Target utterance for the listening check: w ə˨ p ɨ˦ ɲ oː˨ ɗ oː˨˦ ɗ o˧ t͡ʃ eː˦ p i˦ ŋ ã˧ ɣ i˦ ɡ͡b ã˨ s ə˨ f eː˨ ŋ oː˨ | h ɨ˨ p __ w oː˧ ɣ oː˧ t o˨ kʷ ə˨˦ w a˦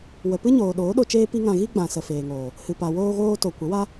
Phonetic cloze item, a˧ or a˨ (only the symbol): a˨